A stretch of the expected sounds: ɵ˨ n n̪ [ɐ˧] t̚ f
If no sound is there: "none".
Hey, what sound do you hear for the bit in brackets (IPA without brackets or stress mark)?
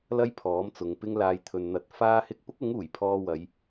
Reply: ɐ˨˥